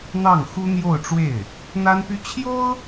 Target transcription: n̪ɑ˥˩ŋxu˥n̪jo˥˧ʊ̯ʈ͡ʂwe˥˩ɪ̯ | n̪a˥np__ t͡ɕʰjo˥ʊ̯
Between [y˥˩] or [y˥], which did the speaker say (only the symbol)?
y˥